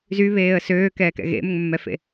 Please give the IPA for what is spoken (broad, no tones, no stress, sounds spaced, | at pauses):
z y β eː ə̯ s øː k ɛː k ɛ̰ ɣ ḛ m ʏ ŋ mː ɛ f ḛ